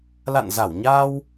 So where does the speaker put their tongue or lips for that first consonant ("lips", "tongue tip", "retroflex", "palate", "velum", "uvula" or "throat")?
tongue tip